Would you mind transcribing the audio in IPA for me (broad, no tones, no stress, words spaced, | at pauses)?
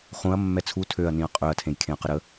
χũɐ̯ mːɛt͡sʰu tʰøɐ̯nĩɐ̯ qʼøɐ̯tʰẽj kʰẽɐ̯qəɾə